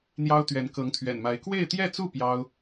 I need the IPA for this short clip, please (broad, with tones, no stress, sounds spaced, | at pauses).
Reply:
n̪ j ɑ˥ ʊ̯ t̪ ɥ ɛ˧˥ n k ɤ˧˥ ŋ t̪ʰ ɥ ɛ̰˨˩ n m a˧˥ ɪ̯ k w e˥˧ ɪ̯ t̪ j ɛ˥˧ t͡s u˥˩ p j ɑ˥ ʊ̯